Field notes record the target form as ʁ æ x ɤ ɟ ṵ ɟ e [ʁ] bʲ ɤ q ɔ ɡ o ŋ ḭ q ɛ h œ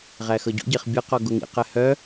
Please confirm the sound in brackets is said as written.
no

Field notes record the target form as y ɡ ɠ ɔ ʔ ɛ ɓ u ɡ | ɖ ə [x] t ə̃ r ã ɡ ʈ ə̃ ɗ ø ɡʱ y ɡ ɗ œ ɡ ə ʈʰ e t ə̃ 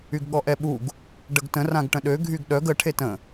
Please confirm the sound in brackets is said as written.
no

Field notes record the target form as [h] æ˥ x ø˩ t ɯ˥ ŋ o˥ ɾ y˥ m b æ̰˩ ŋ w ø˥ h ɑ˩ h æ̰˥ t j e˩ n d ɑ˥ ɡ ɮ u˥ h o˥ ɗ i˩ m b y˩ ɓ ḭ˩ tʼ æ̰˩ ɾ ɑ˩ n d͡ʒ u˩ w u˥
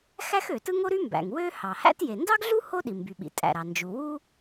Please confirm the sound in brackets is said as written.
no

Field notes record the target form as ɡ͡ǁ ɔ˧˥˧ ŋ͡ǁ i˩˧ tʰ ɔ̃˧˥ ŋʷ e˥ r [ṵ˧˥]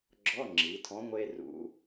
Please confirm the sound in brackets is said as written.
yes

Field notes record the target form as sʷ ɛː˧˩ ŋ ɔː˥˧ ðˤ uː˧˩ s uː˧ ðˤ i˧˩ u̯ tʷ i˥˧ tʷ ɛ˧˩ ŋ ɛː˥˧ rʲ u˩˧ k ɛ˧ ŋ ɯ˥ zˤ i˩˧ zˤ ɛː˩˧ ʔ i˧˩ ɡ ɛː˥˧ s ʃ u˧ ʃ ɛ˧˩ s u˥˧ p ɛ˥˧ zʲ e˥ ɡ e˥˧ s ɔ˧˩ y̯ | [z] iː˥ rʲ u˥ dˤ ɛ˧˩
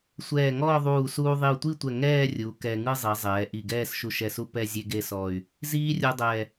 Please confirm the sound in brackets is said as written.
yes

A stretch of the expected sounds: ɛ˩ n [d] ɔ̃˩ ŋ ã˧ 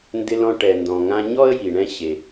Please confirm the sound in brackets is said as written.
yes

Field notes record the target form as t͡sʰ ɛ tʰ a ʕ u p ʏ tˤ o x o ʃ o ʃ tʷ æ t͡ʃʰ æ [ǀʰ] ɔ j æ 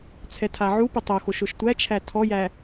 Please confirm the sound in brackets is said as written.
no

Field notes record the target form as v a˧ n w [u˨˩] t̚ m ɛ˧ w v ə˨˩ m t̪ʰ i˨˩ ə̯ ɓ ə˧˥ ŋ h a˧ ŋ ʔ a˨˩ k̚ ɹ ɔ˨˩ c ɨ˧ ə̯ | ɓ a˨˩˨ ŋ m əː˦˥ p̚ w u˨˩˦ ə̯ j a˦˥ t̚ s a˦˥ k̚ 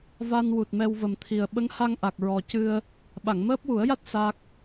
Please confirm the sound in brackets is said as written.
yes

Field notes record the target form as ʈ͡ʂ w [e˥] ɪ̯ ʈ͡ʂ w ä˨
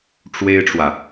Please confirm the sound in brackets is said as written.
yes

